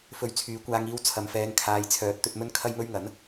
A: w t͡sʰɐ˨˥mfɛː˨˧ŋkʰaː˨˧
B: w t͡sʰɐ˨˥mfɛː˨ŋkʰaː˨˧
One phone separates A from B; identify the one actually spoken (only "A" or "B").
A